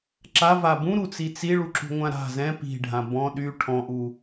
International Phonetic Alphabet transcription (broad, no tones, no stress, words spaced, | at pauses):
ǁava bũɾut͡si t͡siɭuǁṳŋʷã ɾa̤ zɛ̃ pi̤ɖʱã bɔ̃ ɗy ʈʰɔ̃ʔu